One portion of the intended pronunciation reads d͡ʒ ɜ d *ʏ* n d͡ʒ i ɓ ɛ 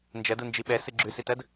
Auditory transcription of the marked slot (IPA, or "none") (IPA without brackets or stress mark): u